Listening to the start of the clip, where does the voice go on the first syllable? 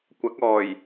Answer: rising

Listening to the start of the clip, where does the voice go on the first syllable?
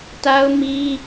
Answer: high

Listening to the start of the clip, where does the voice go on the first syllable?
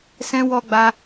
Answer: high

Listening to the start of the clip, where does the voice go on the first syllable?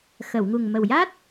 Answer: low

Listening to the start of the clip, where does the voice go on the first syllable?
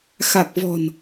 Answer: low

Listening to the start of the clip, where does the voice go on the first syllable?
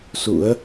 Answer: rising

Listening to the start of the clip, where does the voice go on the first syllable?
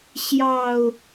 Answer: low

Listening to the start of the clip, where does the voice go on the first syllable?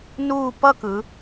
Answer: falling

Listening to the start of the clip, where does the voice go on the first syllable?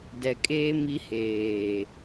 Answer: low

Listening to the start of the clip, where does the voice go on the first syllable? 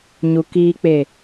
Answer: low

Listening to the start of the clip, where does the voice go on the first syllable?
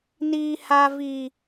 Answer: high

